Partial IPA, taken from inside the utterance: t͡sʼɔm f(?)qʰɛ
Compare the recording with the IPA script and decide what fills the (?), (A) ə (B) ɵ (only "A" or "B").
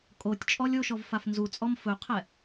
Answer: B